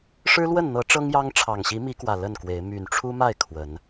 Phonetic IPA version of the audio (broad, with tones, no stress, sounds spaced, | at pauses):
ʂ ɻ̩˦ l w ə˥˨ n n̪ ɤ˨˦ ʈ͡ʂ ɤ˦ ŋ j ɑ˦ ŋ ʈ͡ʂʰ ɑ˨˩ ŋ ɕ i˨˦ m i˨˦ k w ä˨˩ l ə˥˨ n k w e˨˦ ɪ̯ m y˨˩ n ʈ͡ʂʰ u˦ m a˥˨ ɪ̯ kʰ w ə˨˦ n